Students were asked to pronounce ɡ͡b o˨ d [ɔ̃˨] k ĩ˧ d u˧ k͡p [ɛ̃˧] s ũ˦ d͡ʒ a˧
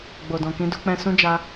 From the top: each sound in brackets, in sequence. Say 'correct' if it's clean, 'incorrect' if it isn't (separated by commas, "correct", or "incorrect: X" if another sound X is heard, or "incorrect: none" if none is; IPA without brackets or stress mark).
correct, correct